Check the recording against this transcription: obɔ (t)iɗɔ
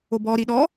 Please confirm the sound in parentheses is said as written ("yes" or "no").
no